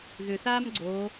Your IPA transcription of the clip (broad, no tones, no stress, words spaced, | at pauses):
ðʏθaːm ɡ͡ǀo